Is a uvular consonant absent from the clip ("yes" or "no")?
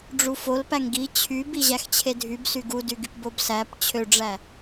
yes